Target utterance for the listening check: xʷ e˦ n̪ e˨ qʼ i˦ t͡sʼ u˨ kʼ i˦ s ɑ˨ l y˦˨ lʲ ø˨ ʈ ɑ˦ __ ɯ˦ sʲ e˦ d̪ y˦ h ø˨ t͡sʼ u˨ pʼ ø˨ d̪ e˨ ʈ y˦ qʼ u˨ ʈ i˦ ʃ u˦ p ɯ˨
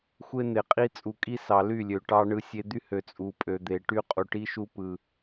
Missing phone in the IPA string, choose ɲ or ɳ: ɳ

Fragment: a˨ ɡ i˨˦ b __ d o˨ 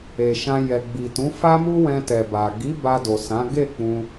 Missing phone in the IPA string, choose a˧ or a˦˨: a˧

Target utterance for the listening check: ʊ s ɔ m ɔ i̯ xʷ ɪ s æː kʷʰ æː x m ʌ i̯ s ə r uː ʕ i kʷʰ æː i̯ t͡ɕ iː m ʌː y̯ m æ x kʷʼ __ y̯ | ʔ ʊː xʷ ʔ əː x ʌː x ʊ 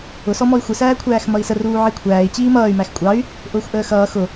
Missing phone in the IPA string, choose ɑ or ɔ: ɑ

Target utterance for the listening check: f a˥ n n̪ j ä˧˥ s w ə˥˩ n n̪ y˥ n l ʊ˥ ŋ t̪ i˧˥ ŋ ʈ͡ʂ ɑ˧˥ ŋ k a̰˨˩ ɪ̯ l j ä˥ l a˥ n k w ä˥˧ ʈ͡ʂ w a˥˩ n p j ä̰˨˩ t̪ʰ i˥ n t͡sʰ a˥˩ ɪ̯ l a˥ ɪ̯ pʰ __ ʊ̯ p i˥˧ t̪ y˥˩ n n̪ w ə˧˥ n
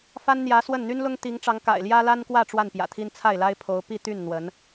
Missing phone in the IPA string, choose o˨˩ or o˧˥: o˧˥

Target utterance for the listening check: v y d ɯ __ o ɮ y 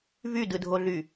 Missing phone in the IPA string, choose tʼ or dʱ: dʱ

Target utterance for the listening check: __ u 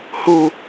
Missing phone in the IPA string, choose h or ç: h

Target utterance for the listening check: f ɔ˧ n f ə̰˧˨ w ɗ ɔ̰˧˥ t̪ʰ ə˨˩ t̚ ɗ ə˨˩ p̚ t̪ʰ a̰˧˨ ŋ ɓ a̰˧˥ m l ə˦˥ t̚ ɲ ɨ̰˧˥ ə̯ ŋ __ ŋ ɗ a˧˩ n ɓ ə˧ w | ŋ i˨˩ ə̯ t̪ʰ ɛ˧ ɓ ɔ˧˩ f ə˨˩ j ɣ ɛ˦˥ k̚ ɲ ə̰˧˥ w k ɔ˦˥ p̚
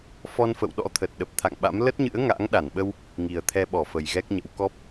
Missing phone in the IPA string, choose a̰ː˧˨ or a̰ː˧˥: a̰ː˧˥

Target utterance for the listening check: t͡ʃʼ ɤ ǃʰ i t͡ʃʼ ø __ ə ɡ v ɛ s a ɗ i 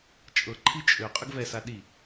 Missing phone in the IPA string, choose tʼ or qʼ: qʼ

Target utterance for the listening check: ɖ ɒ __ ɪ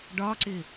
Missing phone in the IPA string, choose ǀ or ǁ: ǀ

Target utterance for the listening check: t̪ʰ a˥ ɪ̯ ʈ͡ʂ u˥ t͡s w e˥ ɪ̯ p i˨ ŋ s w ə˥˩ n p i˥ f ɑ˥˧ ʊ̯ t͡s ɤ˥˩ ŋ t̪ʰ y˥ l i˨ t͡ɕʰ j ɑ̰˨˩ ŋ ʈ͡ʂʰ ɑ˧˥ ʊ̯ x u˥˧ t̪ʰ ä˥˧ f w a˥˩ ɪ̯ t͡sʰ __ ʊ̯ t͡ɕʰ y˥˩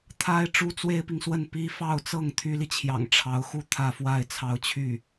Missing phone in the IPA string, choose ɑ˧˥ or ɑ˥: ɑ˧˥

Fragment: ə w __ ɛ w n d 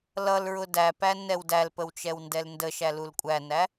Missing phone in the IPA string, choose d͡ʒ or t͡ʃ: t͡ʃ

